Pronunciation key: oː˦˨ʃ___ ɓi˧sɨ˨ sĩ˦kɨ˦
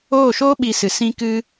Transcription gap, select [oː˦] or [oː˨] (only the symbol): oː˦